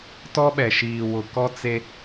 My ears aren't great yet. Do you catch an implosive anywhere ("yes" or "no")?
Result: yes